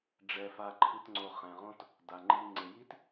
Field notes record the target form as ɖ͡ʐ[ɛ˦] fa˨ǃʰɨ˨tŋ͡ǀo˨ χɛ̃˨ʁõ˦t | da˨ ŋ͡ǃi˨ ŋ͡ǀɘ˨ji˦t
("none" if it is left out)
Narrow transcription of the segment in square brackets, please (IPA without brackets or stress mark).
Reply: ɛ˨